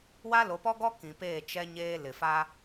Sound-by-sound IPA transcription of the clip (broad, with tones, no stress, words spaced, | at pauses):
wa˦lo˨˦pɔ˦ɡɔ˦ kĩ˨peː˦˨ t͡ʃɛ˦ ɲeː˦ lɪ˨fa˦